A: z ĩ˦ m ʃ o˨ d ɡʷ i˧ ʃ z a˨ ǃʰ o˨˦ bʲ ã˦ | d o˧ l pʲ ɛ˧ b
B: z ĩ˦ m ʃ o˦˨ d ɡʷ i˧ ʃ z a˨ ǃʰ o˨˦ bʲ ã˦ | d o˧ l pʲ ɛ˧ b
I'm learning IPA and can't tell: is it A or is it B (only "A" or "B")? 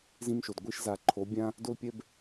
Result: A